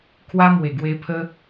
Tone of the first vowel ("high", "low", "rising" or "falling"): high